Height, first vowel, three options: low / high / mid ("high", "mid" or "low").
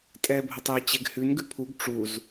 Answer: mid